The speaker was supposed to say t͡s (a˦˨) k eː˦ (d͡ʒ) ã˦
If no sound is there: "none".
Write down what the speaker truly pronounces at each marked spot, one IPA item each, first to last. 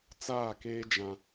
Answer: aː˦˨, d͡ʒ

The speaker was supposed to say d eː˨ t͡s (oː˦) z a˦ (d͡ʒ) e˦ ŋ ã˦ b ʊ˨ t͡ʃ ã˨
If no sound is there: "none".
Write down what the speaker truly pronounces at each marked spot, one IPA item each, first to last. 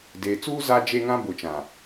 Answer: uː˦, d͡ʒ

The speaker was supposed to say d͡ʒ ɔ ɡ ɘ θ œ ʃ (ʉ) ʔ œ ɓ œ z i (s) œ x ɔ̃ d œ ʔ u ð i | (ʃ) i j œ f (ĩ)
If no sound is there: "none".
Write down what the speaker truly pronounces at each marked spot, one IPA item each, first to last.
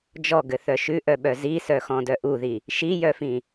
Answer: ʉ, s, ʃ, ĩ

